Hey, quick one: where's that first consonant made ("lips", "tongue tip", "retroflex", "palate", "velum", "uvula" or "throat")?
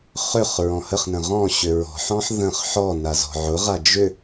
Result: uvula